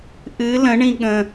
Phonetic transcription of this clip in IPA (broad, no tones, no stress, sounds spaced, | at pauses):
ʔ ɨ l ə̃ ɳ ĩ ɠ ə̃